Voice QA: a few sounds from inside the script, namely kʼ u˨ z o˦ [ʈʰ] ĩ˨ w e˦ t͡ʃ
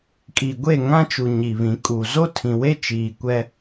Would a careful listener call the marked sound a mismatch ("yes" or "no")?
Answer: yes